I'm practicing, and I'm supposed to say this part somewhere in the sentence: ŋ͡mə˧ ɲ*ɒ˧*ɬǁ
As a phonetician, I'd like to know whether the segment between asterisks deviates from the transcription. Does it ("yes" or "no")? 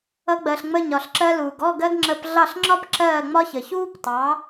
yes